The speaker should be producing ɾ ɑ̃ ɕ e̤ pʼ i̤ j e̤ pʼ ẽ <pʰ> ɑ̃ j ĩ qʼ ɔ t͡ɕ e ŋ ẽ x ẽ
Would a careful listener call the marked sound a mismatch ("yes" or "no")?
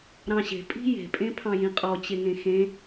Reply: no